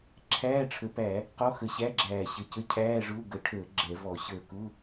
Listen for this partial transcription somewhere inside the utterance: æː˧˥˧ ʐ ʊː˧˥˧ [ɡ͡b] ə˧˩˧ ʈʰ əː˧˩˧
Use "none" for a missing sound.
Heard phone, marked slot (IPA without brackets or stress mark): ɡ